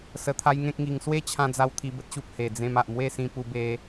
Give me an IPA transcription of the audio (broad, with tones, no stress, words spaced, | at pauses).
sə˧t̪ʰa˦jŋẽ˦k̚ŋi˧ŋ swe˥˧t͡ɕʰã˧d͡za˧w t̪ʰi˧bə˦t̚ɕu˨p̚ he˨˩d͡zẽ˧m a˨ʔmwe˥˧sĩ˧pu˧ be˧